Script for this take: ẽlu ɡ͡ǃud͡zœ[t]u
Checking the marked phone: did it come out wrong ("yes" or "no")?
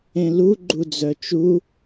yes